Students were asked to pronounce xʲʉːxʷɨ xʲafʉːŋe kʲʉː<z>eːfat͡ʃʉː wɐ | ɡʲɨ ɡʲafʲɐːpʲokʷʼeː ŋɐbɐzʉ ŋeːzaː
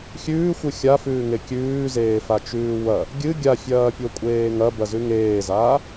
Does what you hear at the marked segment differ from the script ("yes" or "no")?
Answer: no